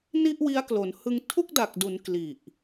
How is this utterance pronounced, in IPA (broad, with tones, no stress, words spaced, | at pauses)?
ni˥˩ʔwi˦˥a̯klo˩˦n hɯ˧ŋ tʰu˥˩k̚da˨˩k̚du˩˦n kli˨˩ʔ